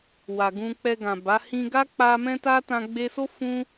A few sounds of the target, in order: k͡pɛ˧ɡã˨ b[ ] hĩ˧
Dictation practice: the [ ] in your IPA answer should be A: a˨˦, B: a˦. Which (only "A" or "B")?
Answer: A